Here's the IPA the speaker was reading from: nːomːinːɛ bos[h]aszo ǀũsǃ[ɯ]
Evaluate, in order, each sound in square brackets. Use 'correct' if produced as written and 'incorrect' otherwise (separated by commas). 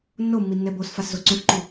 incorrect, incorrect